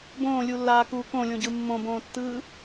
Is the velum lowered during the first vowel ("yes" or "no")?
yes